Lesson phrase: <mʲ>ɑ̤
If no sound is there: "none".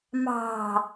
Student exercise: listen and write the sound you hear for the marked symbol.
m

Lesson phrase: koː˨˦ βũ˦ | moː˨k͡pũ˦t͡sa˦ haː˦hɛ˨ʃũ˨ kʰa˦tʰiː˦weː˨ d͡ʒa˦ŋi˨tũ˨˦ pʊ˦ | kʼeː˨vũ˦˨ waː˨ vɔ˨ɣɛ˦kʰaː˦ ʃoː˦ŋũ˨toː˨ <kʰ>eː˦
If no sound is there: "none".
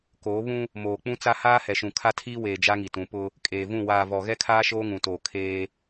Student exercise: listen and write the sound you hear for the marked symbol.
kʰ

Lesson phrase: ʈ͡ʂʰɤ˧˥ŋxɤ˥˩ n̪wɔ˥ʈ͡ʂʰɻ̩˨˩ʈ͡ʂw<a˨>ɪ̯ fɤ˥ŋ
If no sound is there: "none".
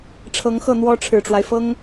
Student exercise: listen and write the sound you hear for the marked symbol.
a˦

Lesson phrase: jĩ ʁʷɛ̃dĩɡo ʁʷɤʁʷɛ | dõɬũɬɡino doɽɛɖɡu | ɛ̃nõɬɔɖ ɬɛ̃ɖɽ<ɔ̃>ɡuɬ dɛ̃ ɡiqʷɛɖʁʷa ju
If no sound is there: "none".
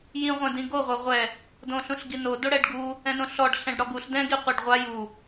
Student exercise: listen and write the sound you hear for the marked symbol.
ɔ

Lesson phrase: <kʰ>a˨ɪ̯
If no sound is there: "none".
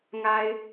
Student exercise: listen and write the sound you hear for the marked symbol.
ŋ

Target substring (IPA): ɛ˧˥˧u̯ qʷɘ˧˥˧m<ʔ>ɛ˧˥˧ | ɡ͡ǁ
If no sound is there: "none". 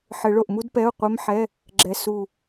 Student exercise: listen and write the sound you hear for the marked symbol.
ħ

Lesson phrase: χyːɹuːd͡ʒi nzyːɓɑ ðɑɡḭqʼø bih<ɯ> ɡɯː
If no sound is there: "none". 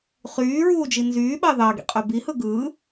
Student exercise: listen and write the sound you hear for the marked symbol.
ɯ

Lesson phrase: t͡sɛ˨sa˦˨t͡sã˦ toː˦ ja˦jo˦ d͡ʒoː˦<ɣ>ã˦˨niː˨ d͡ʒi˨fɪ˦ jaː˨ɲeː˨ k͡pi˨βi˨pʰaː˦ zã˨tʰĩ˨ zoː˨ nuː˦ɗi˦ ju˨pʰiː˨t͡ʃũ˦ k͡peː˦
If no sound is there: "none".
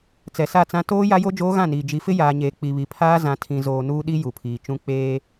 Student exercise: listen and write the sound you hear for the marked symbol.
ɣ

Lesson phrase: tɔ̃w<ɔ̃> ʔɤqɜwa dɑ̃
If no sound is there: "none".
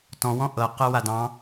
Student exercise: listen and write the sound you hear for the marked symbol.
ɔ̃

